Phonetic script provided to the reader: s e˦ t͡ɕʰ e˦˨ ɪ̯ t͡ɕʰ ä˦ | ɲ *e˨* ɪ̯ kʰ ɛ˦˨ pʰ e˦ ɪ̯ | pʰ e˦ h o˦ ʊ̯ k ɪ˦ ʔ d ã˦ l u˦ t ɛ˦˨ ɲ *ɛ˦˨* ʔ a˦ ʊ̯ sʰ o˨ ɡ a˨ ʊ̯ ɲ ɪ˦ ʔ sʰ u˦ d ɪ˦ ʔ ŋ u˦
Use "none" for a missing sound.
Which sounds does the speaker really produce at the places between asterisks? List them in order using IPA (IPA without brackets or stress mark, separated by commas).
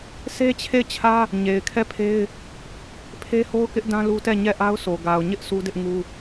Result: e˨, ɛ˦˨